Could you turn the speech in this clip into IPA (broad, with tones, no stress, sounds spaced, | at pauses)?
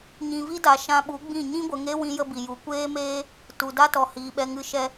ɲ ĩ˨ v i˦ d a˨ ʃ ã˧ ɓ u˨˦ ɡ͡b ĩ˦˨ ɲ ĩ˦ ɡʷ ə˨ ŋ e˦ w ĩ˦ j ə˦ b i˨ j u˨˦ kʷ eː˦ m eː˦ | t u˨ d a˦ t ɔ˨ h iː˨ ɓ ɛ˧ ŋ ɨ˦ ʃ ɛ˦